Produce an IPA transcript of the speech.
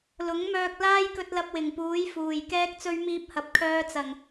l ʊ˨˥ ŋ m œː˧ k̚ l aː˥ j k ɵ˧ t̚ l ɐ˧ p̚ w ɪ˨˩ ŋ p uː˨˥ j f uː˨˩ j k ɛː˧ k̚ t͡s ɵ˧ ɥ m iː˧ p̚ h ɐ˨ p̚ kʰ œː˧ t͡s ɐ˨˩ ŋ

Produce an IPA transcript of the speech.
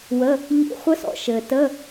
w ə˧˥˧ | ʎ ḭ˧˥˧ χʷ ə˦˥ s ɔ̰˩ ʃ ɘː˩ t ə˧˥˧

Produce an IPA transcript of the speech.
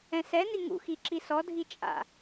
ɛ̃ s ɛ n i ŋ ṵ x i ǁ i s ɔ dʱ i t͡ʃʼ a̰

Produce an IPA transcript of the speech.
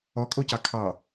ɔ kʼ o c ɑ kʰ ɑ

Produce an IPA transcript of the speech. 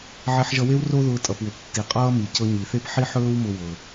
ʕ e˧ ħ ʒ ʌ˧ w e˥ w r o˥ ð ʊː˧ tʼ ʌ˩ p w ʊ˩ p tː i˩ qʼ ʌː˥ m i˩ c ɤ˧ ɲ i˩ θ e˥ p ħ i˥ ħ ɵː˥ w m ʊ˥ w ɤ˩

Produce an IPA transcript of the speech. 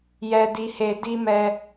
j ɛ˦ d i˦ h e˦ d i˦ m ɛ˦

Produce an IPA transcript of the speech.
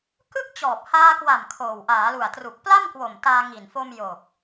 k ɯ˥˩ k̚ t͡ɕ ɔː˨˩ p̚ h aː˧ k w a˨˩ m kʰ oː˨˩ w ʔ aː˩˦ l u˨˩ a̯ t r u˨˩ k̚ p l a˥˩ m k w o˨˩ m t aː˧ ŋ i˨˩ n f o˧ m j o˨˩ k̚

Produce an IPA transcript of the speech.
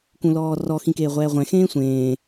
k ũ l ɔː r ɔ x ĩ k eː ʁʷ ɛː ʁʷ ɛ̃ x ẽː sʷ ẽː

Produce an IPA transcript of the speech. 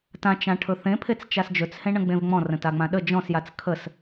t ã t͡ʃ ã ʈʰ ɵ θ ẽ pʰ e t͡s t͡ʃ a s d͡ʒ ɵ t͡s h ẽ ɳ ə̃ ɡ͡b ẽ v ŋ͡m ɔ̃ r ə̃ t a ŋ͡m ã ɗ ə d͡ʒ ɔ̃ s j a t͡s kʰ ə s

